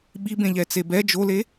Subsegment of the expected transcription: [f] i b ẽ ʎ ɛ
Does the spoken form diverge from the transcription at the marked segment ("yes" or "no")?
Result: yes